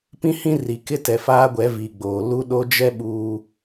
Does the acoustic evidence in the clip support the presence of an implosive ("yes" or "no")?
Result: yes